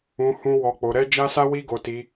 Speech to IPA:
ũ˧ h ũ˦ w ɔ˧ k͡p o˧ ɾ ɛ˦ d͡ʒ a˦ s a˦ w i˦ ɡ o˧ t i˧

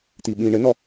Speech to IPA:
t̪ i ɓ ĩ ɳ ɘ n ɔ

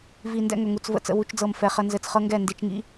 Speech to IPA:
v i˨ n d ɛ̰˦ ŋ ɵ˨ ŋ u˨ t͡s v ə̰˨ t͡s ə̰˨ w u˨ t͡ʃ d͡z ɤ˨ m f ɛ˨ χ ə˦ n z ɘ˨ t͡s χ ɤ˦ ŋ ɡ ɛ˦˨ n d i˨ t͡ʃ ŋ ḭ˦

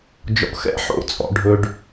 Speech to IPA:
d͡ʒ ɔ̰˩ x ɛ̰˧˥ ħ o̰˧˥ t͡sʼ ɔ̰˩ ɖʱ ɵ˩ ɖ

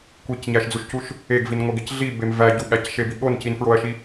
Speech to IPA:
kʷ i c ɲ æ ʃ d͡z u ʃ c u ʃ | e ɡ v i n ŋʷ e ɡ e c ɮ i b e m v æ ɟ u ɠ æ c ʃ e b i ɠ o n c i n f ɹ o ɐ̯ ʃ i

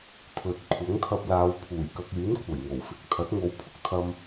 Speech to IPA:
t̪ʰ ɵ˨ t̚ kʷʰ ɐ˨˥ ŋ t̪ʰ ɐ˧ p̚ l aː˨˧ w pʰ uː˨˩ j k ɐ˧ k̚ yː˨˥ n kʷʰ ɐ˨˩ j ŋ o˨˩ w f ɪ˧ k̚ t̪ʰ ɐ˨˥ t̚ ŋ o˨˧ w pʰ ʊ˥ k̚ t̪ʰ ɐ˧ m

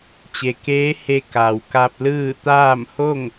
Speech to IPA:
t͡ɕ e˩ k eː˧˥ h e˧ k a˩ w k a˧ p̚ l ɯː˥˨ t̪ aː˥˨ m h o˥˨ ŋ

